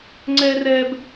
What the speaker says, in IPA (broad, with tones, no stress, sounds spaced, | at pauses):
ŋ͡ǀ ɛː˦ r ɛː˦ b